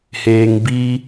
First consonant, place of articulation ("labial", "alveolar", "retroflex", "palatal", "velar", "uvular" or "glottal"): glottal